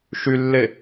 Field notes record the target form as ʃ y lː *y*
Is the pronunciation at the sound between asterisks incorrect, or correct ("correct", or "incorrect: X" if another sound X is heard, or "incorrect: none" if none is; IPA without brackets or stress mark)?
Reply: incorrect: e